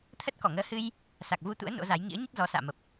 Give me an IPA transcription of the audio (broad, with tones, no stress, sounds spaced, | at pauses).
t̪ʰ ə˦˥ t̚ k ɔ˧˩ ŋ əː˨˦ h ɨ˧ j | s a˨˩ k̚ v u˧ t̪ ṵ˧˥ ə̯ n o̰˧˥ z a˨˦ j ŋ ḭ˧˥ ə̯ ɲ ə˦˥ t̚ z ɔ˨˦ s a̰ː˧˨ m ə˨˩ p̚